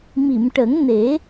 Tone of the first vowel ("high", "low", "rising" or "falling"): low